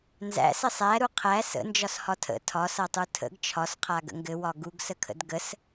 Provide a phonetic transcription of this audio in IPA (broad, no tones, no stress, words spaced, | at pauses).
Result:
nzæ̰sɘ sˤæɾu qʰæ sə̰ nd͡ʒɒshɒtʰə̰ tʰɒsʌtˤu tʰə̰ɡ t͡ʃʰɒsqʰa ɡə̰ŋɡɘ wɒɡuɡsəkʰə̰d ɡəs